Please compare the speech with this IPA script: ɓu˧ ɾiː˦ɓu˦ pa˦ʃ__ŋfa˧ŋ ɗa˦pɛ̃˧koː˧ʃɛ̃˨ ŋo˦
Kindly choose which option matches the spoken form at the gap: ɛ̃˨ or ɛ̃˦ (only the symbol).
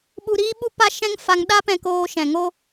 ɛ̃˦